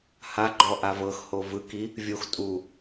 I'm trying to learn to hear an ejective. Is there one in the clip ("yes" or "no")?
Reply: yes